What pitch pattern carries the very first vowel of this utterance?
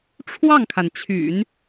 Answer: falling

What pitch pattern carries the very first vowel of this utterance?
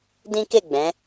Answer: high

